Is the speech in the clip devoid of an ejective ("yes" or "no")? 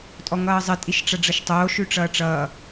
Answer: no